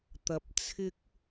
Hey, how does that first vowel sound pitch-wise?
low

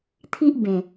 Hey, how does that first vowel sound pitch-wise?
high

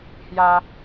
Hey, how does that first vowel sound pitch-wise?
high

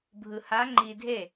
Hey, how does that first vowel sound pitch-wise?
low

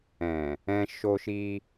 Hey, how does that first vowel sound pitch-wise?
low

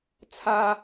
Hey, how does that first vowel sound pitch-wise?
high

